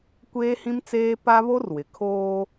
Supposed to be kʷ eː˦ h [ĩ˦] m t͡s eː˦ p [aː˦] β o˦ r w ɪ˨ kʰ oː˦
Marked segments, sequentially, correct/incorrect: correct, incorrect

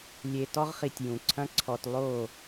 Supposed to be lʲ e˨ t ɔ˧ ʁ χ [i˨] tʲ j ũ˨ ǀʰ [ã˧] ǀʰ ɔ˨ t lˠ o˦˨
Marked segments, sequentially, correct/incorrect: correct, incorrect

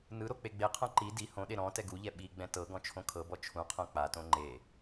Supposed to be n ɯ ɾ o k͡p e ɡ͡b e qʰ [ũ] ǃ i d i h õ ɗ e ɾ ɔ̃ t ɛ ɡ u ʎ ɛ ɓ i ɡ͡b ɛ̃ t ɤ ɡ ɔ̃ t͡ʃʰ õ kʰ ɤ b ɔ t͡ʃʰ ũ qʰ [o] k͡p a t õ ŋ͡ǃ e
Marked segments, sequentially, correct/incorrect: incorrect, incorrect

